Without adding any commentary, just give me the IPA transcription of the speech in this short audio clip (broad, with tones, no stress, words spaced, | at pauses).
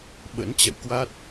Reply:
ɓə̰˧˥nt͡ɕɛ̰˧˨wkwa˦˥t̚